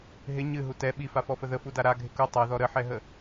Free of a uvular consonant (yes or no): yes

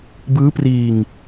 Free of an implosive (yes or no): yes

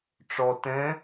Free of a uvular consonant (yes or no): yes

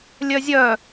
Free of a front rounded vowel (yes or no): no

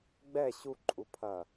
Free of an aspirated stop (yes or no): no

